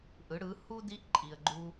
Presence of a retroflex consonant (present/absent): present